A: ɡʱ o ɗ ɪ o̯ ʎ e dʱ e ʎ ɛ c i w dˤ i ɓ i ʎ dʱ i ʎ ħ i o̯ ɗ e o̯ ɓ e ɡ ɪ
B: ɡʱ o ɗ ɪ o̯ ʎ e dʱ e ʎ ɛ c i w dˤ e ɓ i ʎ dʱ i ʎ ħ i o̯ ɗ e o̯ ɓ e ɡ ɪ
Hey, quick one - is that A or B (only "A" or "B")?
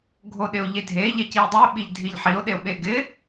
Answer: B